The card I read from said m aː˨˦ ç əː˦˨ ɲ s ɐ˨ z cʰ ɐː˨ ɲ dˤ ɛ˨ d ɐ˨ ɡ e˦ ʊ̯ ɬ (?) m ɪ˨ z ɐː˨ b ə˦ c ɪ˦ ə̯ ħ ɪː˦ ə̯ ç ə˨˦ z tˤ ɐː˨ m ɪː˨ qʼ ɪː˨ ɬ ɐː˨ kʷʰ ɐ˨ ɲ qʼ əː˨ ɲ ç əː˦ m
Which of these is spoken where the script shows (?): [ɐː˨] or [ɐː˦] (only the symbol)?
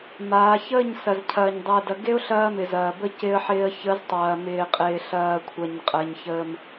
ɐː˦